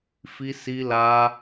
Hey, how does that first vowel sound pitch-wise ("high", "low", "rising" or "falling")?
high